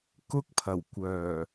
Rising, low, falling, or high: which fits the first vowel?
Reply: high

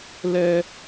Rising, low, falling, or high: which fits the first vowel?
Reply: high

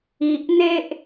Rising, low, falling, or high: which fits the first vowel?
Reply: low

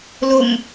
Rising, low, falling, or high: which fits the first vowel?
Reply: low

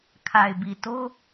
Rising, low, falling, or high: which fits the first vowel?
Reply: low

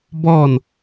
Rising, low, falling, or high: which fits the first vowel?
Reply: falling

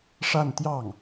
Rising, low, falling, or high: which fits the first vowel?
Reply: falling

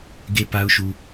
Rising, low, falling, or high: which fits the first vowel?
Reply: high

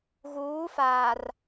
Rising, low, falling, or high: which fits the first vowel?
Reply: rising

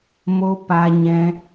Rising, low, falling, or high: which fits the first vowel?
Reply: high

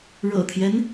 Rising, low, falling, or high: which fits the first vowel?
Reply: low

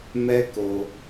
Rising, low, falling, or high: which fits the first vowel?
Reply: high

